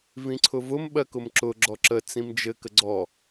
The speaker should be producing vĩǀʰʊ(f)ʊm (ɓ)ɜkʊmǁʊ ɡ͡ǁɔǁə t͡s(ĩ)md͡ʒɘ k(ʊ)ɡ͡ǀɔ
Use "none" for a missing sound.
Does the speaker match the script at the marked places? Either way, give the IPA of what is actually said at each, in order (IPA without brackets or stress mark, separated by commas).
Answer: v, ɓ, ĩ, ə